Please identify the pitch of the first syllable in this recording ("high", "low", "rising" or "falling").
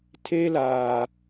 high